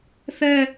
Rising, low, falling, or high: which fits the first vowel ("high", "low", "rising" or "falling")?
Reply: falling